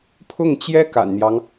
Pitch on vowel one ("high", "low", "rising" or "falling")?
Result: falling